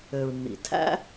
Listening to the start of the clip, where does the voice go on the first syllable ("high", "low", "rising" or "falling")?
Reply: low